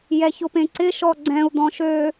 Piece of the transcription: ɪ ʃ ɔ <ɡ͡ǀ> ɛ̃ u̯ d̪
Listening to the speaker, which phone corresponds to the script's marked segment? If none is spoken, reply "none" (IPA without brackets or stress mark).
ɡ͡ǀ